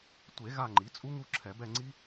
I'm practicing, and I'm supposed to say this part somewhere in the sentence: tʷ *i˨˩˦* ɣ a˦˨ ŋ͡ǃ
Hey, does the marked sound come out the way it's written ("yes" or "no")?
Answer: no